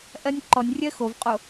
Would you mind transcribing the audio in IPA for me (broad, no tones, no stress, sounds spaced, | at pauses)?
ʔ ɜ nʲ ǃ ɔ nʲ rʲ ɜ x o v qʼ o